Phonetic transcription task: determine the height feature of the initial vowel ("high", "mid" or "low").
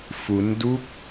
high